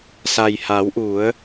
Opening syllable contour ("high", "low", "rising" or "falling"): low